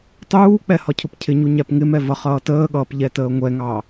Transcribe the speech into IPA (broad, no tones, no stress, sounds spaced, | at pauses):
tˤ uː k͡p ɛ h ɒ cʰ ʊ p cʰ ɪ ɲ u ɲ æ p ŋ ɪ m ɛ v ʌ χ ʌː t əː ɠ ʌː p ʎ ɛ t əː ŋʷ ɛ ŋ ɑ